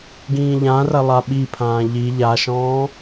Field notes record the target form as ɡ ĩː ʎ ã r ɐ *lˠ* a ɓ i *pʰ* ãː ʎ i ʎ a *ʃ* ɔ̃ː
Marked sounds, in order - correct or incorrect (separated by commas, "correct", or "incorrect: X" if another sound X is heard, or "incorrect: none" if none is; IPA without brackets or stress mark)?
correct, correct, correct